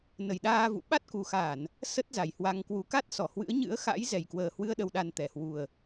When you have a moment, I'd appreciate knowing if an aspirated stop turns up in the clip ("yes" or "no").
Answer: no